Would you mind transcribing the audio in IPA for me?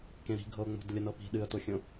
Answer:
k ẽ ɾ i̤ ɡʱ ɤ ʊ̯ ŋ͡m o̤ d lʲ ɐ n ɤ p i̤ ɗ ɨ ə̯ t o xʲ õ

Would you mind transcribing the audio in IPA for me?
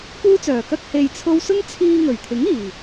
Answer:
k uː˥ t͡s œː˨˩ k ɐ˥ k̚ h e˧ j t͡sʰ o˥ w s ʊ˥ ŋ t͡sʰ iː˧ ŋ ɵ˨˩ ɥ t̪ʰ ɪ˨˥ ŋ iː˨˩

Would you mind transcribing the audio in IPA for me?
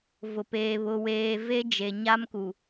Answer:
v ʊ˨ p eː˨ β ʊ˨ w eː˨ v e˦ d͡ʒ e˨ ɲ a˦ m k u˨

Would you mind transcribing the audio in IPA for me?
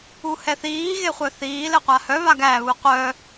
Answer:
u h ɛ θ iː ɣ e χʷ œ θ iː l ɘ qʷ a h œ β a ɡ æ β u qʷ œ

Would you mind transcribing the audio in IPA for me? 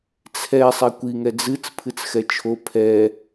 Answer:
t͡sʰ ɛ sˤ ɛ kʷ i ŋ ɛ d͡z ɨ t͡s pʰ ɨ t͡s x ɛ t͡ʃʰ o pʰ ɛ

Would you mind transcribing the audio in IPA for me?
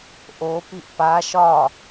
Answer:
ʔ o p i ʔ p a ʃ ɒ

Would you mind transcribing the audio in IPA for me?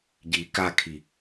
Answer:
ɟ i k a kʰ i

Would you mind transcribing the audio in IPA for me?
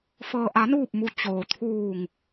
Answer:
f ɤː˩ ʔ a˩˧ n uː˧˩ p̚ m u˩ t͡ɕ oː˩ t̪ʰ uː˧˩ ŋ

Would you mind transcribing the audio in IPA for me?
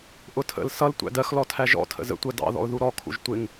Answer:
ʔ ʊ tʰ ə̰ l s ʌ l tʷ æ̰ d ɜ x l ɔ tʰ æ ʒ ɔ̰ tʰ ə̰ z ə̰ tʷ ɜ d ɑ̰ ð ɔ̰ ʊ̯ ð u ɾ ɔ kʰ ṵ ʒ tʷ ɪ ŋ

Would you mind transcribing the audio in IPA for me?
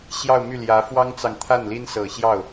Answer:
ɕ j ɑ˥˧ ʊ̯ m y˥˩ l j ä˧˥ f w ɑ˥ ŋ t͡s ɑ˨ ŋ t̪ʰ a˥˩ n l i˥ n s ɤ˨˩ ɕ j ɑ˥˩ ʊ̯

